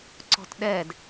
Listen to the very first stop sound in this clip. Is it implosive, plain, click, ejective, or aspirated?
click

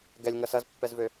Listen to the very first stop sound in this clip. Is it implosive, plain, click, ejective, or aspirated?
plain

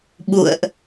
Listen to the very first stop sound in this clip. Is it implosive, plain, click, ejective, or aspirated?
implosive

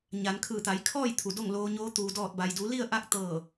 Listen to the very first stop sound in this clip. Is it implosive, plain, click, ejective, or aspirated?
aspirated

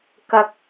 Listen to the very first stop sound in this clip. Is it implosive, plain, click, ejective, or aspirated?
plain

